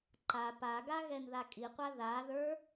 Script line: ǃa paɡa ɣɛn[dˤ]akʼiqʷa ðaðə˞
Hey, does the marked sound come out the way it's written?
no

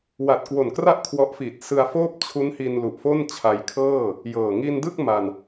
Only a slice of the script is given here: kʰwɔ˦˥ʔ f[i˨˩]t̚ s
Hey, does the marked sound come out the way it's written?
yes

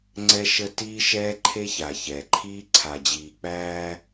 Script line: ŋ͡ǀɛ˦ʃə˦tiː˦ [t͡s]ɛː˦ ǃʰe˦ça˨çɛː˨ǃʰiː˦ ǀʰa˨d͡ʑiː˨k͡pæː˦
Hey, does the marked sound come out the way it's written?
no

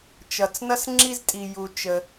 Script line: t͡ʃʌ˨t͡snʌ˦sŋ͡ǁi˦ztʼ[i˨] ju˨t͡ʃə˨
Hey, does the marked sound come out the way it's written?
yes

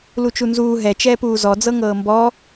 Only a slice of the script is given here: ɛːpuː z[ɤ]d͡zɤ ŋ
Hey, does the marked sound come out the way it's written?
no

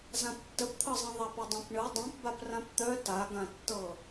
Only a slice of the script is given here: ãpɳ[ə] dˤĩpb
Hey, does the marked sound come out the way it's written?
no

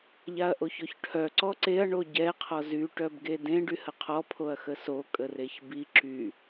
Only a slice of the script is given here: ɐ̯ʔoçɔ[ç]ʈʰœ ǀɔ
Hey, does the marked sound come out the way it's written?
yes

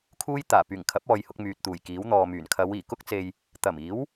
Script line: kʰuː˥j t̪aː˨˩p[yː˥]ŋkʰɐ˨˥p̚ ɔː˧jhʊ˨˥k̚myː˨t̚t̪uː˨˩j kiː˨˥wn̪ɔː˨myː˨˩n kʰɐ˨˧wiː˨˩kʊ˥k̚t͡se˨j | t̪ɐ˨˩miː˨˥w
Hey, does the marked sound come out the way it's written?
no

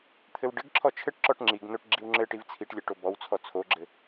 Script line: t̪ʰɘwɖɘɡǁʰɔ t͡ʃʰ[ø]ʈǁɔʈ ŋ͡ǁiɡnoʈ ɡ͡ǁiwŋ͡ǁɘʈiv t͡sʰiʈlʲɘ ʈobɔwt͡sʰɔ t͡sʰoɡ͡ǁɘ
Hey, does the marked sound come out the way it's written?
no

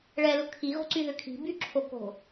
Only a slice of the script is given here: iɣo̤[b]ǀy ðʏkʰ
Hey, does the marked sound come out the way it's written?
no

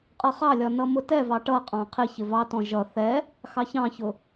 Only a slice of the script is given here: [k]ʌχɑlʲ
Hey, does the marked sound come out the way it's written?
no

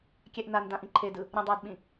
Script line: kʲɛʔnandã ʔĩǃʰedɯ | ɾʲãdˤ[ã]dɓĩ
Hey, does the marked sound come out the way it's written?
no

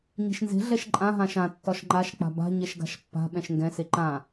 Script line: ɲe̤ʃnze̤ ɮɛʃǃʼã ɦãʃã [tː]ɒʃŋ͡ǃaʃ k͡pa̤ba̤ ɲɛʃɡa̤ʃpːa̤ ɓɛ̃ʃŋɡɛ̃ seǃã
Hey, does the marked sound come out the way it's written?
yes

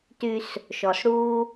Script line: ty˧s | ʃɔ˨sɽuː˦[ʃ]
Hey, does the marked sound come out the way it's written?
no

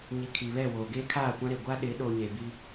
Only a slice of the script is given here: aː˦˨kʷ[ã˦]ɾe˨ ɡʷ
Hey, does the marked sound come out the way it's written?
yes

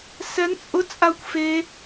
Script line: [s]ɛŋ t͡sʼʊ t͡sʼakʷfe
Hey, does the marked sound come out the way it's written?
yes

